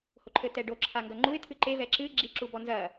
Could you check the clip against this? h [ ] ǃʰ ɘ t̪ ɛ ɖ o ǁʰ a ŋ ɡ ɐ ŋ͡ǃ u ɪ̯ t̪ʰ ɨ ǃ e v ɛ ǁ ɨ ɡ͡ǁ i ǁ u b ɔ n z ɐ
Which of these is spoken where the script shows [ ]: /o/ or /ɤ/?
o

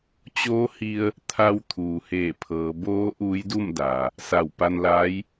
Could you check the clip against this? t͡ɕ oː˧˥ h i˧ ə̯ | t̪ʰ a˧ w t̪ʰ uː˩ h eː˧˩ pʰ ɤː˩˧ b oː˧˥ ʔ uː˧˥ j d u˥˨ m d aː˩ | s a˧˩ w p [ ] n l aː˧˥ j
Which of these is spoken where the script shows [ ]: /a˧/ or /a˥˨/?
a˧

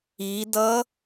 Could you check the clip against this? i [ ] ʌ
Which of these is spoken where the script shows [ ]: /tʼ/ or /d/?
d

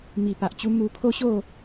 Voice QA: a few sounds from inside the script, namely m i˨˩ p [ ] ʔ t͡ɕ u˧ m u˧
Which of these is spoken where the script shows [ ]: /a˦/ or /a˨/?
a˨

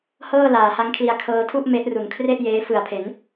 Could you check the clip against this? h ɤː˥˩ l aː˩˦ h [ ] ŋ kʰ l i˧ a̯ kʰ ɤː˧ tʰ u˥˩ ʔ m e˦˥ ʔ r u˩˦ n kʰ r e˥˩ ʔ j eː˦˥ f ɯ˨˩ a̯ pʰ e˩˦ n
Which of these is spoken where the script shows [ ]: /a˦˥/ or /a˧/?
a˦˥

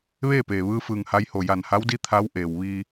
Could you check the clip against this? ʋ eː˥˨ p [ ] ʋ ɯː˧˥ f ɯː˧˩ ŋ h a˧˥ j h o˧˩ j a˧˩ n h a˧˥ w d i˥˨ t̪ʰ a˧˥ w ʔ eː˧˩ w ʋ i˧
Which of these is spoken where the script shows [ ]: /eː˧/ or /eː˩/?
eː˩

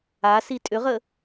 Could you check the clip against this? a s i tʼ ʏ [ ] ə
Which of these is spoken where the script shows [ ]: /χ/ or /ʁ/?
ʁ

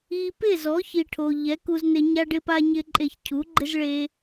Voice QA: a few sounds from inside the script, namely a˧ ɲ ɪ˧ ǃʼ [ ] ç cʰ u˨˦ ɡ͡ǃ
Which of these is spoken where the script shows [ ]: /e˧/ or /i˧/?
e˧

